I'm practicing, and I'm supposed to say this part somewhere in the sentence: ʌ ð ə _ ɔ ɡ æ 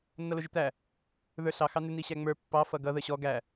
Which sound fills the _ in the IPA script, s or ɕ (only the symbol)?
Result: ɕ